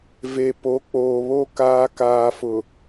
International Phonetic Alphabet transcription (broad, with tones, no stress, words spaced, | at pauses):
ve˨po˨˦k͡poː˨βo˦ kaː˨kaː˨fʊ˨